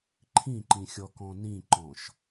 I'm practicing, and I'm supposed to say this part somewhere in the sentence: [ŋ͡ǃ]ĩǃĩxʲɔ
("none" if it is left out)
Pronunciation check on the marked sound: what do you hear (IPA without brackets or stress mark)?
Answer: ǃʰ